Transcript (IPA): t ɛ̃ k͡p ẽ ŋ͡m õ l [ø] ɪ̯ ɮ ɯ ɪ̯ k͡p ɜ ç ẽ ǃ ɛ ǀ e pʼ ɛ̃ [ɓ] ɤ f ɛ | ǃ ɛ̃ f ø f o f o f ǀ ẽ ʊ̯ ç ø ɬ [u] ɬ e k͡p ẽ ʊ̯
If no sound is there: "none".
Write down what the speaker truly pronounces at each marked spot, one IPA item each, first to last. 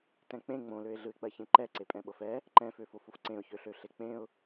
ø, ɓ, ø

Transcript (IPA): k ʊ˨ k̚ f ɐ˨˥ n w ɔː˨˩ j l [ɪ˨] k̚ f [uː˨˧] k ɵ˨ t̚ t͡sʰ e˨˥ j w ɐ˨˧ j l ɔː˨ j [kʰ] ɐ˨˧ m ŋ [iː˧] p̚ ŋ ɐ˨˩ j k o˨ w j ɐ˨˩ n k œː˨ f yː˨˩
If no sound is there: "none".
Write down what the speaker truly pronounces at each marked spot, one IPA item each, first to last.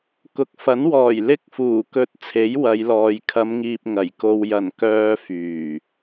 ɪ˧, uː˨˩, kʰ, iː˨

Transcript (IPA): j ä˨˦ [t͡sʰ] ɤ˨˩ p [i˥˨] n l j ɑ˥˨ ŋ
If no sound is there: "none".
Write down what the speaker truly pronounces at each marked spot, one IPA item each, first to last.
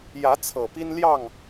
t͡sʰ, i˦

